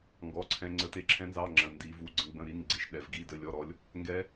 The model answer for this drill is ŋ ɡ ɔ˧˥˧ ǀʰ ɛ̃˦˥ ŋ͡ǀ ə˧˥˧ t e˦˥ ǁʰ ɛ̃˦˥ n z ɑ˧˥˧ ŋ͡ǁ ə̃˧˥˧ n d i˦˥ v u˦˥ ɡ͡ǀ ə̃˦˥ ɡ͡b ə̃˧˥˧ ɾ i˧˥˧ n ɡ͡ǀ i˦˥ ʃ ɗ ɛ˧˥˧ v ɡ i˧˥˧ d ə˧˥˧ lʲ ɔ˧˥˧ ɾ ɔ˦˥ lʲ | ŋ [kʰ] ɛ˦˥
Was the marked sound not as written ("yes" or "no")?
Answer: yes